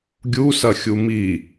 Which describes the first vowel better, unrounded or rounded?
rounded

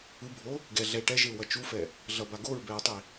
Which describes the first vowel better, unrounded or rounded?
unrounded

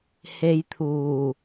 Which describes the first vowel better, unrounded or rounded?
unrounded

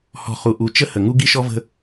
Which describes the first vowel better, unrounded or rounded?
rounded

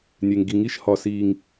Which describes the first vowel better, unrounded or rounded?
unrounded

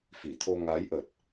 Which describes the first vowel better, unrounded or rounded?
unrounded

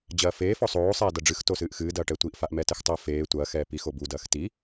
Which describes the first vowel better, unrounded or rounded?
unrounded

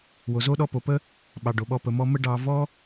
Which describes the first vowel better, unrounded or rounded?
rounded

